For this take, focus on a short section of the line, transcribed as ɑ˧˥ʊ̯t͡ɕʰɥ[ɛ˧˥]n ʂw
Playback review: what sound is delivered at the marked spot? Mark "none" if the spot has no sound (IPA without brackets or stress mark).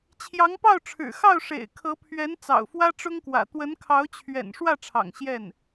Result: ɛ̰˨˩